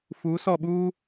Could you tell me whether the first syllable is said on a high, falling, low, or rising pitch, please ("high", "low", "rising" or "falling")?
rising